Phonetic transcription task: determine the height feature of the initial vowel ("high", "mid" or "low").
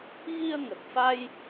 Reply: high